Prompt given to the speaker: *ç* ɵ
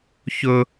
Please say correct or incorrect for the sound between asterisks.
correct